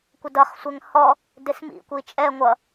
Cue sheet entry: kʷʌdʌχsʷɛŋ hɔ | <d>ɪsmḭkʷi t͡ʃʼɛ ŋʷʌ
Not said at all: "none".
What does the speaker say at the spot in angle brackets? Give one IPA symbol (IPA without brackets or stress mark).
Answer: d